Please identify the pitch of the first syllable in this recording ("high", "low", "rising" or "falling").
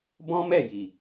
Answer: high